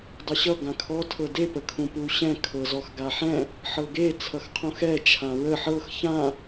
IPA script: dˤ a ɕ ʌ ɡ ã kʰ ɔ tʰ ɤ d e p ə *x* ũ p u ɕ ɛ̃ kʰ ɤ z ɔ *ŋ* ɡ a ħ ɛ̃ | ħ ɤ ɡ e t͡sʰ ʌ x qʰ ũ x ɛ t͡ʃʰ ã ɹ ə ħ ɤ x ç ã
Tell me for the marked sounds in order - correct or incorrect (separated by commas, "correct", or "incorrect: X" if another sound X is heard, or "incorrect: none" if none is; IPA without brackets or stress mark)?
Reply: incorrect: kʰ, incorrect: x